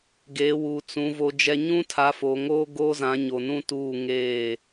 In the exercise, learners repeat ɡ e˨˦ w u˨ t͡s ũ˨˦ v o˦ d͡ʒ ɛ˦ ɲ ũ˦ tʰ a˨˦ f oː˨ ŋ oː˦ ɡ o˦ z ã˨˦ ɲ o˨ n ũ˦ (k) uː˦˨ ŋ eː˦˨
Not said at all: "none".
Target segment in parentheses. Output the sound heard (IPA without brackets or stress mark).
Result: t